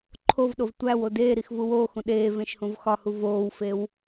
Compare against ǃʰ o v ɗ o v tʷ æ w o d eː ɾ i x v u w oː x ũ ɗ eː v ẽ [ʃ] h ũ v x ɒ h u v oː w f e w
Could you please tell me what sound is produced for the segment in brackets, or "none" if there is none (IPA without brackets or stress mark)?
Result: ʃ